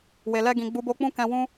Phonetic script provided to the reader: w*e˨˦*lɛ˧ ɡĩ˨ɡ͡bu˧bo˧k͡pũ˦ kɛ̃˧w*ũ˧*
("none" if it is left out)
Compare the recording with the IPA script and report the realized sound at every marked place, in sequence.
e˨, ũ˦

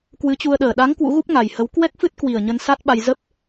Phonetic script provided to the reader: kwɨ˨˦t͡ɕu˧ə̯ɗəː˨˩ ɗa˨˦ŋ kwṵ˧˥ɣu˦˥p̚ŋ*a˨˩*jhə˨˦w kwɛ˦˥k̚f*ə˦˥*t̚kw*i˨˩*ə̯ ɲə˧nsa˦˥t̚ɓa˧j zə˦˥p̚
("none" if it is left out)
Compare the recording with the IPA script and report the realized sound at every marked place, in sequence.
a˨˩, ɨ˦˥, i˨˩

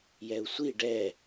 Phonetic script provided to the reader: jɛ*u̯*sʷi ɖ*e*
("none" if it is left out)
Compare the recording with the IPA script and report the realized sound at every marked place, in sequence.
u̯, ɛ

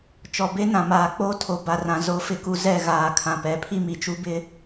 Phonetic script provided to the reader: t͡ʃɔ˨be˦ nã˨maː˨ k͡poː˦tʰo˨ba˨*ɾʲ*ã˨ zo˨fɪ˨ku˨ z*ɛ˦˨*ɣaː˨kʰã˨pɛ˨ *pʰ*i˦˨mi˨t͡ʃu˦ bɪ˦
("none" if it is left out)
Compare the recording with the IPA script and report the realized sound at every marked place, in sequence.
r, ɛ˦˨, pʰ

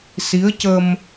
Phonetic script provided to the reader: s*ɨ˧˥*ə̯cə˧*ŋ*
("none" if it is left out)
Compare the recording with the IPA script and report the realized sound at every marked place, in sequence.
i˧˥, m

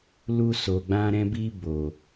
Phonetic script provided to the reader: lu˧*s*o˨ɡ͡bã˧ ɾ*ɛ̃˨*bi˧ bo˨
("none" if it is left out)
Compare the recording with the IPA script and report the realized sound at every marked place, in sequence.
s, ɛ̃˧

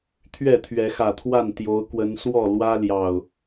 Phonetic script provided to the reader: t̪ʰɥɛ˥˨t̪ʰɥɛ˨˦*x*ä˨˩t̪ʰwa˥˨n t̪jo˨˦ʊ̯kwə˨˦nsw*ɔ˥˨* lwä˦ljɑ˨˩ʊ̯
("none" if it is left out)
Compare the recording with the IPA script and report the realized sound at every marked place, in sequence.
x, ɔ˥˨

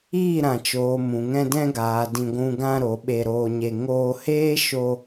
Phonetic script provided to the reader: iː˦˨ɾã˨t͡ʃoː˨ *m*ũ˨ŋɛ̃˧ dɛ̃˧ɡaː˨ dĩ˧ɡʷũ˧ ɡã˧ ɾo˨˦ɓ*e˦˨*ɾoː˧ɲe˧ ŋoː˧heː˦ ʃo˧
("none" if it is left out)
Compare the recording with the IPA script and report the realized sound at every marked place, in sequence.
m, e˧

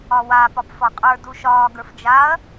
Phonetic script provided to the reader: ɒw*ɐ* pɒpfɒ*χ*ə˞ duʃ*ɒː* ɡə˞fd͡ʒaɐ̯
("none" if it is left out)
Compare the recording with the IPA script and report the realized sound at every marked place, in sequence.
a, qʼ, ɒː

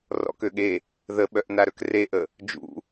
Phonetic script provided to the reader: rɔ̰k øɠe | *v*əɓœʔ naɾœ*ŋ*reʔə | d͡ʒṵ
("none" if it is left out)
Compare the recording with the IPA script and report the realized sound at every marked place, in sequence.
ð, k

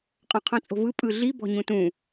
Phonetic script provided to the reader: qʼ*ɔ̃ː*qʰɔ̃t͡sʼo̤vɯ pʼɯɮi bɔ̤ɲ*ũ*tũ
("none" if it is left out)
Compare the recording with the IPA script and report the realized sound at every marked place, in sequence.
ɔ̃, ũ

